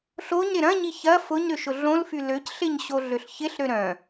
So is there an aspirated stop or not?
no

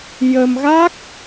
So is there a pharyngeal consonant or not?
no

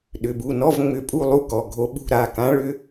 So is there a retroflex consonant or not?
yes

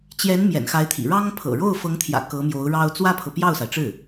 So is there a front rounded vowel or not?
no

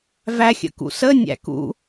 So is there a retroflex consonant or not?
no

